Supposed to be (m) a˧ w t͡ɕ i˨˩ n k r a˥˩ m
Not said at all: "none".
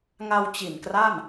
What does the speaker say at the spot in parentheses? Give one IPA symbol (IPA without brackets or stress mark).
ŋ